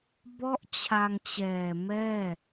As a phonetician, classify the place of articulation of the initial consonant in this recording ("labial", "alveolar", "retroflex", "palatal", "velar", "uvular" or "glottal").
labial